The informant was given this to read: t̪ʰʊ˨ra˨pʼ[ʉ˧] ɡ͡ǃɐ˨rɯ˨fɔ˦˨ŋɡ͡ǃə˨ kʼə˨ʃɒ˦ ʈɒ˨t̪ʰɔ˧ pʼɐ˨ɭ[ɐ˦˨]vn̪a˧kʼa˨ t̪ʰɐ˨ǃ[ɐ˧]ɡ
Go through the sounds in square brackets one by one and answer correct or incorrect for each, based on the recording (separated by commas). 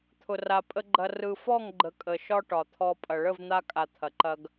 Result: incorrect, incorrect, correct